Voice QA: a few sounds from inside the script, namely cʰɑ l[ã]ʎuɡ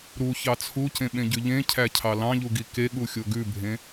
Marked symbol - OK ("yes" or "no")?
no